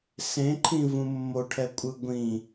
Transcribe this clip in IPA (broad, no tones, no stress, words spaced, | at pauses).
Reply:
sẽǃʰĩvũ mːoʈʰɛkʷʼɯ ɡʷĩ